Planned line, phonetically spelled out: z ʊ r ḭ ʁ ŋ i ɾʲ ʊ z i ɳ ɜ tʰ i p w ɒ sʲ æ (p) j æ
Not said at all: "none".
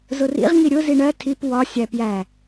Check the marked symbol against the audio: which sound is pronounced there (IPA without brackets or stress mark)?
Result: p